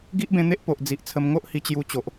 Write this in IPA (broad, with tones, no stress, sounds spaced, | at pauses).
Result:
ɡ i˦ ʔ b ẽ˧ n̪ e˦ ʔ p o˨ ʔ d͡z i˨ ʔ t͡sʰ ə˧ m ŋ o˦ ʔ h i˧ t͡ɕ j u˧ t͡ɕ o˨ ʔ